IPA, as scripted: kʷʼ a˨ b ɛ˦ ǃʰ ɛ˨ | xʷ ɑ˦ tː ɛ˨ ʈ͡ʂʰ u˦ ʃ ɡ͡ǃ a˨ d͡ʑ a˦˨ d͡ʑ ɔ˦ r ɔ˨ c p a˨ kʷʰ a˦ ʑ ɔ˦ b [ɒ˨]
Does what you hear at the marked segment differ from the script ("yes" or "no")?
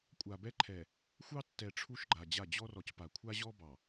yes